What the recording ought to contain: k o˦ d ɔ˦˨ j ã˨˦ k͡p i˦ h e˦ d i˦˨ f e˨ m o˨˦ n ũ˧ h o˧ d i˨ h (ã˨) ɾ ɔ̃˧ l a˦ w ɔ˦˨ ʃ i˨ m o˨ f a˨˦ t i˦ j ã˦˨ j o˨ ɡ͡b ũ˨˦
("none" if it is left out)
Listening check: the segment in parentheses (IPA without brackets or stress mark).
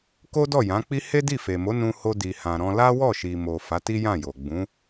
ã˨